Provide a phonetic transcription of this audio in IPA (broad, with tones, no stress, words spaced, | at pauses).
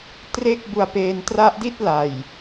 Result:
tre˥˩k̚bu˧a̯peː˧n tra˦˥ʔdi˥˩t̚ la˨˩j